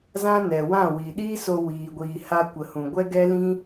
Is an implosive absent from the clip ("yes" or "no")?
no